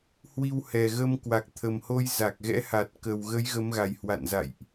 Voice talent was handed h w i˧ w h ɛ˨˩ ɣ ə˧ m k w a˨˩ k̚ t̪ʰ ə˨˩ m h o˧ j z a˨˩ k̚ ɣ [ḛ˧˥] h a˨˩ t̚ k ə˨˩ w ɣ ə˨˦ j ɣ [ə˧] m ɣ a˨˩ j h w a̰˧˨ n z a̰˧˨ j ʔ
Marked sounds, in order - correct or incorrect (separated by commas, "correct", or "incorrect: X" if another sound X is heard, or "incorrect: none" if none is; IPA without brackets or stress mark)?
incorrect: ɛ̰˧˥, incorrect: ə˨˦